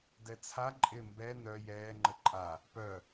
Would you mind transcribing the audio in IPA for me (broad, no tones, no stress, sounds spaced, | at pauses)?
d ɛ t͡sʰ a ǃʼ ɪ m b ɛ n œ j ɛː ŋ͡ǃ ə ǃʼ a | p œ